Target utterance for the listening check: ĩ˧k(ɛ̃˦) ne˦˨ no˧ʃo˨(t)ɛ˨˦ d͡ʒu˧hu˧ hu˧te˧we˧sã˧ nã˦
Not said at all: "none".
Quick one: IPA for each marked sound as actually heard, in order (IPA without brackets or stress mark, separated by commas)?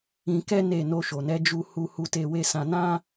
ɛ˦, n